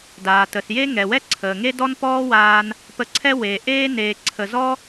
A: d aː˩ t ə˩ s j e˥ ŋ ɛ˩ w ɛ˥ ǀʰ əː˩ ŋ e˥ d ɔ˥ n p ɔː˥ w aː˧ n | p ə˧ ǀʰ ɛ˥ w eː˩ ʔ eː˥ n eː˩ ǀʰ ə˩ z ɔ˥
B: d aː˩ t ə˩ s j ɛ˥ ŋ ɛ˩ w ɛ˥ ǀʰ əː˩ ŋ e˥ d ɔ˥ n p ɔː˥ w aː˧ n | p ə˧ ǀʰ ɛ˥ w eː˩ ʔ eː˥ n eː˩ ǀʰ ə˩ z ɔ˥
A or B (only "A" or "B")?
A